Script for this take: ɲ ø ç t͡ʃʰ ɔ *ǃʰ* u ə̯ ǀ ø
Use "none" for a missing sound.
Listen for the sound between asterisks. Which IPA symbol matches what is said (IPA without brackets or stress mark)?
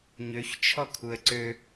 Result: kʰ